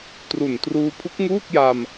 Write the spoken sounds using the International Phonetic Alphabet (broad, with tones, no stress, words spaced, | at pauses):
tru˨˩ntruː˧ pʰu˦˥k̚ŋuː˥˩k̚ja˧m